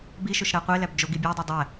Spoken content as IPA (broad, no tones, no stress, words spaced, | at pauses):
biʃoʃɾæ qʷelæb d͡ʒoɡi bʲædˤo dˤæ